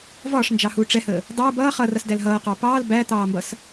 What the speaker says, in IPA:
v ɒː ʂ n d͡ʒ ɑ h uː ʈ͡ʂ ɛ h əː | dˤ uː b ʌː χ ʌ r ʌ s d æ l ɦ ʌː q ɑ p ɑː l b æ t̪ ɑː m b ʌ s

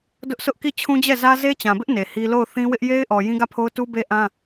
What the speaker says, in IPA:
d ʊ˦ ʔ sʰ ʊ˦ ʔ k i˦˨ t͡ɕʰ ũ˦ d͡ʑ ɛ˦˨ z ä˦ z e˦ t͡ɕ ã˨ b ɪ˦ ʔ n e˨ h i˦ l o˦˨ ʊ̯ θ ĩ˦ w ɪ˦ ʔ j e˦ ɪ̯ ʔ ɔ˨ j ĩ˦ ɡ ä˦˨ pʰ o˦ ʊ̯ t u˦ b e˦ ʔ ã˦

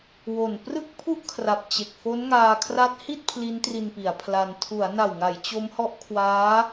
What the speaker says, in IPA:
w o˨˩ n p r ɯ˥˩ k̚ pʰ u˥˩ ʔ kʰ r a˨˩ p̚ t͡ɕ e˨˩ k̚ f o˦˥ n ŋ aː˧ kʰ r a˦˥ t̚ h i˥˩ t̚ pʰ l i˦˥ n t r i˧ n p i˩˦ a̯ pʰ l a˧ n tʰ u˩˦ a̯ n a˨˩ w ŋ a˩˦ j t͡ɕ o˦˥ m h ɔ˦˥ ʔ kʰ w aː˦˥

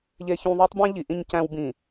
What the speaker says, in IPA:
ʎ e˦ ç ũ˦ ðˤ u˦ tˤ b ẽ˦ ʎ i˨˦ ʔ ĩ˦ ɲ c æ̃˦ w b ĩ˨

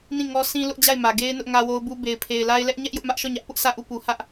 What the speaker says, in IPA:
n ĩ˦˨ ŋ ɔ˦ sʰ ĩ˦ l ʊ˦ ʔ d͡ʑ a˦˨ ɪ̯ m ä˨ ɡ e˦ ɪ̯ n ʊ˦ ʔ ŋ ä˦ w o˦ ʊ̯ b u˦ b e˨ ɪ̯ pʰ e˨ ɪ̯ l a˦ ɪ̯ l ɛ˦ ʔ ɲ ɛ˦ ʔ j ʊ˦ ʔ m ä˦ ʔ ʃ ɔ˦˨ ɲ ä˦ ʔ p ʊ˦ ʔ sʰ ä˦˨ ʔ u˦˨ p u˨ h ä˦ ʔ

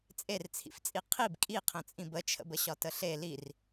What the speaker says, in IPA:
t͡sʼ e r t͡sʰ ḭ f t͡sʼ i qʰ i b kʼ i qʰ ə̃ t͡sʼ ĩ b ə t͡ʃʰ ə̰ b ə ɕ ɒ t ə ɬ e l i r

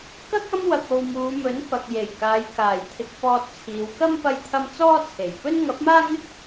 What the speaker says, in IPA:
k ɐ˥ k̚ ɐ˥ m w ɐ˧ k̚ o˧ w m uː˨˧ m ɵ˨˥ n f ɐ˨ k̚ j e˨˩ j k aː˨˧ j k aː˨˩ j t̪ʰ ɪ˧ k̚ f ɔː˧ t̚ t͡sʰ iː˨˧ w k ɐ˥ m p ɐ˧ j t̪ʰ ɐ˧ m t͡s ɔː˥ t͡sʰ e˨˩ j p ɵ˥ n ŋ ɐ˨˥ p̚ m aː˥ ŋ ɪ˥ k̚

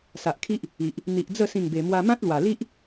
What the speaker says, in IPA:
s a˨ ʔ kʰ i˦ ʔ | i˨ ʔ | n̪ i˨ ʔ d͡z ə˥˧ s ĩ˥˧ ŋ b e˧ m w a˧ m ã˦ t̚ l w a˨˩ l i˦ ʔ

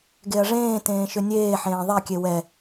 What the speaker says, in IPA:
ɡ e ɐ̯ ʐ ẽː t ẽː ʃ ʏ nʲ eː ħ ẽː ðˤ e kʲ e w ɛ

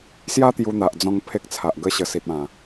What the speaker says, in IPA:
s j a˦ t̪ j u˧ n̪ a˨ ʔ d͡z ɔ̃˧ ŋ pʰ e˦ k̚ t͡sʰ a˨ ʔ ɡ ə˦ ɕ ə˨˩ s i˨ t̚ ã˨˩

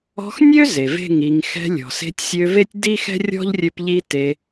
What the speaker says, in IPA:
ɔ̤˧ x nʲ ø˦ z e˨ v e̤˦˨ ŋ i˨ ŋ x ɛ̤˧ lʲ ɔ̤˨ s e̤˧ tʲ sʲ ø˧ v e˦ tʲ d i˦ x ɛ̤˦ rʲ ɔ̤˦ ʎ rʲ ø˧ p ʎ i˦ t e˧

